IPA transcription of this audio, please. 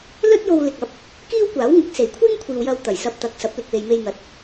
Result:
l ɵ˥ t̚ j o˧ w l ɪ˨ k̚ ɐ˨˥ p̚ | k iː˥ w kʷ aː˨˥ w ŋ ɪ˨˥ k̚ s e˨˩ j kʷʰ iː˥ ŋ kʷʰ iː˨ w j ɐ˧ w t̪ ɐ˨˩ j s ɐ˧ p̚ t̪ ɐ˨ k̚ s ɐ˨˥ p̚ l ɪ˨ k̚ w e˨ j m e˧ j n̪ ɐ˨˥ t̚

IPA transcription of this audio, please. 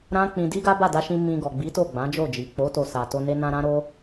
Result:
ɾ ã˦ k͡p ĩ˧ d i˦ ɡ a˦ b a˦˨ d a˧ ʃ ĩ˧ m ĩ˧ ɡ ɔ˨ ɡ͡b i˨˦ t o˦˨ ɡ͡b ã˨˦ d͡ʒ o˦˨ d͡ʒ i˨ k͡p o˨˦ t o˧ s a˨ t o˧ n e˧ n ã˧ ɾ ã˦ ɾ o˦

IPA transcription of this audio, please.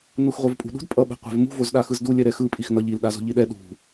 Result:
n u x ʁʷ e v pʼ ṳ ɗ ṳ d pʼ ʌ ɓ ɛ̤ qʷ ɛ̤ v m ṳ v o z ɗ a x ɯ z d u lʲ ɛ ɾ ɛ x ɯ pʼ i x n ʌ ʎ i l ɗ a z o̤ ʎ i ɗ ɛ ɗ ṳ

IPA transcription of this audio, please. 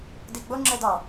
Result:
d i ɡ͡b o ŋ͡ǁ ɛ d ɑ

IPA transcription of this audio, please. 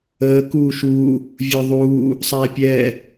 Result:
əː k uː ʃ uː | vʲ ə˞ ðˤ uː | sˤ æː pʲ ɛː

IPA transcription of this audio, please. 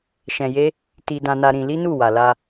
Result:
ʃ ɛ̃˧ j e˦ | t i˧ d ã˧ n a˧ ɾ ĩ˧ l i˦ n u˦˨ w a˨ l a˧

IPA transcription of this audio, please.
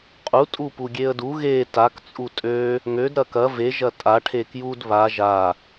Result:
qʼ u tʼ u p u ɡʲ e ə̯ d u ɣ e t a k t͡sʼ u tʼ ø | ŋ ø d ɾ ɐ k ɐ v e ʒ ɐ tʼ a ʈʰ e k j u d β a ʒ a

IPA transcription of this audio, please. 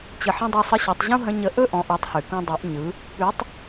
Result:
t͡ɕ ə˧ ħ ə̃˥ dˤ u˧ sˤ ə˧˥ ɕ ɔ˩˧ tˤ ʑ ũ˥ ɦ ə̃˧˥ ɲ ə˧˥ ʔ ɵ˥ ʔ ɔ̃˩˧ ʔ ɔ˩˧ tˤ h ʉ˩ k ũ˧ dˤ ʉ˩˧ ʔ ɲ ɯ˩˧ | p ʉ˧˥ tˤ

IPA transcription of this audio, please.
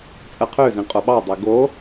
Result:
t͡sʼ ə qʰ ø z ĩ qʼ o ɓ ɑ dˤ e ɡ o

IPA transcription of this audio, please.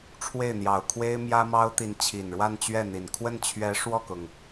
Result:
ʈ͡ʂʰ w e˥˩ ɪ̯ n̪ j ɑ˨˩ ʊ̯ kʰ w e˥ ɪ̯ m j ä˥ m ɑ˥ ʊ̯ t̪ i˧˥ n t͡ɕʰ i˨˩ n ɻ w a˥˧ n t͡ɕ ɥ ɛ˥˩ n̪ i˨˩ n kʰ w ə˥˩ n t͡ɕʰ ɥ ɛ˧˥ ʂ w ɔ˥˩ k ʊ˩ ŋ

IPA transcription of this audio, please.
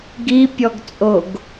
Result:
ɡ i pʲ ɔ ɡ t͡sʼ o ɡ

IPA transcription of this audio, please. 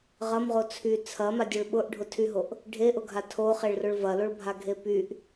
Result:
ʁ ɐ m ʁ o t͡sʰ y t͡sʰ ɐ m a dʲ o ɭ ɓ ʊ ʔ ɖʱ ʊ tʰ y ɦ o ʔ | ɖʱ e ʔ ʊ ɡʱ a tʰ o χ e ɭ r ʊ ɭ v ɐ l o ɭ bʱ a ɡʱ e p y ʔ

